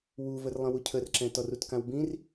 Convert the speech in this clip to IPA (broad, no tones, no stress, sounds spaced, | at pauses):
w u v ə r lˠ ə̃ w u cʰ ə r ǁ ɛ̃ t ɔ r u t k ã w b ĩ r